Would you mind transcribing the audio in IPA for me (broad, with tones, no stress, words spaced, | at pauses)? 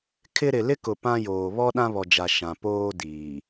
kʰɪ˦ ɾɪ˨lɪ˦kʊ˨ pã˦joː˨ βɔ˦ ɗã˦βɔ˨d͡ʒa˨ ʃã˨ poː˦diː˨